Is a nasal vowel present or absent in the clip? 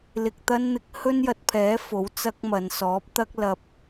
absent